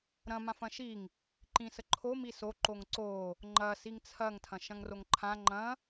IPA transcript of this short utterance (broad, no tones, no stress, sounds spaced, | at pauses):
ɾ ɐ̃ m ã f ɐ̃ ʃ i ŋ | ǃ ĩ s ə ǃʰ o m i s o ǃ o ŋ ǀ o | ŋ͡ǃ ɐ s i ŋ t͡sʰ ɐ ŋ tʰ ɐ̃ ʃ ɐ̃ ŋ r o ŋ ǃʰ ã ŋ͡ǃ ɐ̃